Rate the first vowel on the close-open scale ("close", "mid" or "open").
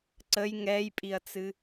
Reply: mid